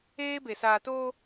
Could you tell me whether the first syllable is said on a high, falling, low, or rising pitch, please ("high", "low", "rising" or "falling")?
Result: high